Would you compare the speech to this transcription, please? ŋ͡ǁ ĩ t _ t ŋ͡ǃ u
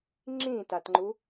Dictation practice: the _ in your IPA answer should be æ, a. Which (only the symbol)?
a